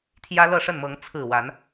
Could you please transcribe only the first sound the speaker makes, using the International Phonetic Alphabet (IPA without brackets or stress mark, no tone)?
t̪ʰ